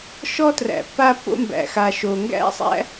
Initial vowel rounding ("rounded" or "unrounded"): rounded